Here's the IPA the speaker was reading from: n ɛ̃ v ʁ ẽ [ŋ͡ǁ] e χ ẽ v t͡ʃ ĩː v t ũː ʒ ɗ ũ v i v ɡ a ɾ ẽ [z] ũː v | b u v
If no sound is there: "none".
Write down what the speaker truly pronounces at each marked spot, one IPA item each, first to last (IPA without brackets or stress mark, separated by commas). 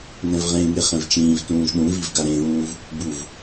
ŋ, ð